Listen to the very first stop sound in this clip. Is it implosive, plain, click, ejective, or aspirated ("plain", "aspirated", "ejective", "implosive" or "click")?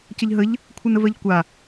plain